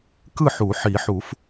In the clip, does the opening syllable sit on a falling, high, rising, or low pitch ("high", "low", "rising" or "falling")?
falling